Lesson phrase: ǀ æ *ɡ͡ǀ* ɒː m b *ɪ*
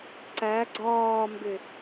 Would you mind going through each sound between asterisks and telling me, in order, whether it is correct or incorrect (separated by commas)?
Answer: correct, correct